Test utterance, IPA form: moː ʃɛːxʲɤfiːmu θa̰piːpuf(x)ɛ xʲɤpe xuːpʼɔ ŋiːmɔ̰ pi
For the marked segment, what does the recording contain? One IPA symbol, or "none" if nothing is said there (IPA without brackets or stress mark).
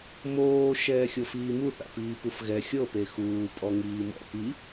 ɣ